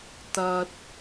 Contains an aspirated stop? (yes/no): no